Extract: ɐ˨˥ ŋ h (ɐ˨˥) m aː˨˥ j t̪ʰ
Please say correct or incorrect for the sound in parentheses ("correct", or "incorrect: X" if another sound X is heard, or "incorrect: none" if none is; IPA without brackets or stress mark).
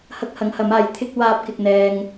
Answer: correct